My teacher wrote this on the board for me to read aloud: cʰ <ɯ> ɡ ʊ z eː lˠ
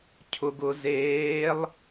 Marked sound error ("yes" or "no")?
yes